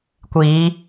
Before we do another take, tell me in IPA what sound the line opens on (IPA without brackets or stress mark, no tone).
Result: kʷ